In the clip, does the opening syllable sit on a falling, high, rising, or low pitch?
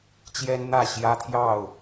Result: high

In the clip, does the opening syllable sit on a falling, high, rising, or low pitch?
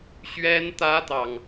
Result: high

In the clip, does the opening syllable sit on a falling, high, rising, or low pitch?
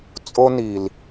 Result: high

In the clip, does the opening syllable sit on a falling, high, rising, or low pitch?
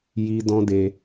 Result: high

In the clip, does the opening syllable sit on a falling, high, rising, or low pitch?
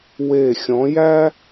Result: falling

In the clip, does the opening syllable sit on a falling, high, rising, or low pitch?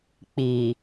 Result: low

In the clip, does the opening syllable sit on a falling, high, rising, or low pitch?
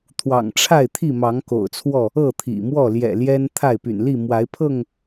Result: low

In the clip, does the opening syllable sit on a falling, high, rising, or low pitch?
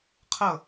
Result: falling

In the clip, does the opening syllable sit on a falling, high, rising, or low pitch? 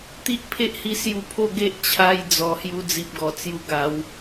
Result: high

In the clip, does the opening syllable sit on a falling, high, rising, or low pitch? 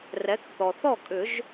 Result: rising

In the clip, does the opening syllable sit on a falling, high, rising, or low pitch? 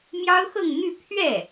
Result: high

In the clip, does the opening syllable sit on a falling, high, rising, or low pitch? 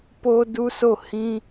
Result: high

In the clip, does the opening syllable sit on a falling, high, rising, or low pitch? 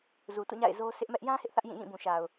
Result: low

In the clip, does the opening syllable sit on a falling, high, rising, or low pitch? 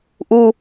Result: high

